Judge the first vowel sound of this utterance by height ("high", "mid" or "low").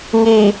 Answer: high